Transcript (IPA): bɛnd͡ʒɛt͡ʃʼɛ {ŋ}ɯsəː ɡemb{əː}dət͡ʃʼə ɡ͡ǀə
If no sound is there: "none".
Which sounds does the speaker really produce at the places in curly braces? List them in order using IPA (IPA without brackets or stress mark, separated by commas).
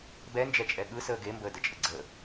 ɠ, əː